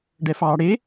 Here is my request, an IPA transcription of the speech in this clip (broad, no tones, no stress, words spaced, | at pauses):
ɖɛfɑːɽe